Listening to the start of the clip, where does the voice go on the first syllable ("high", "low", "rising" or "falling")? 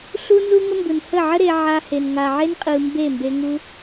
high